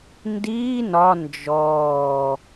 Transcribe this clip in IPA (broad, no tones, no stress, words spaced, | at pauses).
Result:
ndiː nɒ nd͡ʒɔː